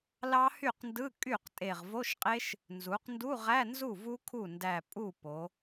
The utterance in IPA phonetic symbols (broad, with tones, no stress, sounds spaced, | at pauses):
l ɑ˦˥ h y˥˩ q n d ɯ˧˥˧ kʼ y˥˩ q tʼ e˧˩ ʁ v o˧˥˧ ʃ qʼ e˦˥ ʃ | n z u˩˧ q n d u˧˥˧ ʁ æ˧˥˧ n z u˥˩ v u˦˥ kʰ u˥˩ n d æ˧˩ pʼ u˥˩ p o˩˧